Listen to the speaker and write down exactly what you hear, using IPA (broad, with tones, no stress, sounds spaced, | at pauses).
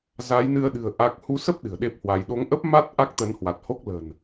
z a˨˦ j n ɨ˧ ə̯ ɗ ɨ̤˨˩ ə̯ ʔ a˦˥ k̚ h u˧ s ə˦˥ p̚ ɗ ɨ̤˨˩ ə̯ ɗ e˦˥ p̚ h w a˧ j ɗ o˨˦ ŋ ʔ ə˦˥ p̚ m a˦˥ t̚ ʔ a˦˥ k̚ t̪ ə˨˦ n h w a˨˩ t̚ h o˦˥ k̚ l ə̤˨˩ n